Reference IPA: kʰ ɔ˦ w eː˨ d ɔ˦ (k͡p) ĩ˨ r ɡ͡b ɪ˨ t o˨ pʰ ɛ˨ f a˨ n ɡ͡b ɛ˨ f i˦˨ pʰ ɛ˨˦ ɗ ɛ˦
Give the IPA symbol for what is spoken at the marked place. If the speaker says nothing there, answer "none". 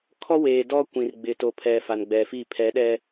kʷ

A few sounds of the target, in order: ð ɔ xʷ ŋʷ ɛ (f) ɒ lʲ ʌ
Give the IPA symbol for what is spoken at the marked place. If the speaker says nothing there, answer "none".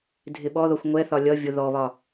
θ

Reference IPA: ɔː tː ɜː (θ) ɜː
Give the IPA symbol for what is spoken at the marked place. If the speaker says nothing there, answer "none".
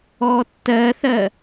θ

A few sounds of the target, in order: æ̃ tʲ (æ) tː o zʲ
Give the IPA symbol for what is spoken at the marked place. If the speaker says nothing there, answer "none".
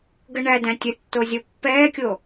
ə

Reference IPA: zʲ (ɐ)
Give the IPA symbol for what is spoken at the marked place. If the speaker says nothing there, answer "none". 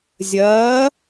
ɐː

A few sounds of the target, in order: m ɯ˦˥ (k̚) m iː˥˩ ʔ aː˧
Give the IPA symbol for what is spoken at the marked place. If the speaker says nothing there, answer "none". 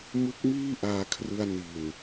k̚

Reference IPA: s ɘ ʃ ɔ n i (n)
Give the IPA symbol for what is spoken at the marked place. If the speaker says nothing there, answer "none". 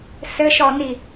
none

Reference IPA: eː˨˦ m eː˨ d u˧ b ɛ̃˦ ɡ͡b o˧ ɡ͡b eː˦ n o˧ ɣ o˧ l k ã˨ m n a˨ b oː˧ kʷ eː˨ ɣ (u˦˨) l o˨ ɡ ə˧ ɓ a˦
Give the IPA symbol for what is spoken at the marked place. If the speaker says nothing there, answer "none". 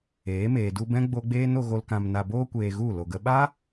u˦˨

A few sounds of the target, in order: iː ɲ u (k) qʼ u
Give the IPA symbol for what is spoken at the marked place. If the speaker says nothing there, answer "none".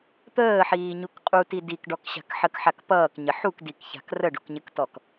k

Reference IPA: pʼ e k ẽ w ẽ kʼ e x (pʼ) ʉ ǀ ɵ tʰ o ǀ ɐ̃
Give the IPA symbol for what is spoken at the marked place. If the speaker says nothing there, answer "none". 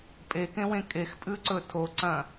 pʼ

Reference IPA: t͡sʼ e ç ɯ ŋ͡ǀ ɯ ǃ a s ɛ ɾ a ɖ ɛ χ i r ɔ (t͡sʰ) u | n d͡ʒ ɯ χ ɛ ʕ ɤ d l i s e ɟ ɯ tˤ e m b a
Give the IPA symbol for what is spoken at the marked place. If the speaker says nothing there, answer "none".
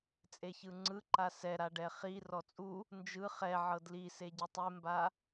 t͡sʼ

